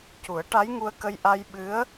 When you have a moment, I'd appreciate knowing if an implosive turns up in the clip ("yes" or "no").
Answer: yes